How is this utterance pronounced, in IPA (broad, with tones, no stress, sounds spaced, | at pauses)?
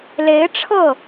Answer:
l e˧˥ ɪ̯ ʈ͡ʂʰ ɤ˥˩